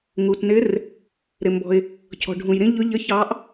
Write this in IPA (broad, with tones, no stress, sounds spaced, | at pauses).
ŋ u˩ t n ɪ˧˥ r | ɾ ɪ˩ m b ɔ̤˩ ɪ̯ | cʰ ɔ̤˩ ɖʱ ũ˩ j ɾ ĩ˧˥ ʎ ʊ˧˥ ʎ ə˧˥ ç ɑ˧˥ ʔ